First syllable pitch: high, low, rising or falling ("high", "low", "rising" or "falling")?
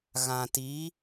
low